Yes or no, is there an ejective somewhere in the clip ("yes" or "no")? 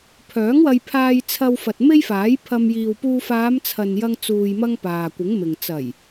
no